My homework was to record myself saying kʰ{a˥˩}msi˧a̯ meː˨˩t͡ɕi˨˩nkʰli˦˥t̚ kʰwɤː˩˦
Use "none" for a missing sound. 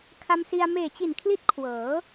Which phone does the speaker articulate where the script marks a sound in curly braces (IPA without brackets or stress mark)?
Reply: a˧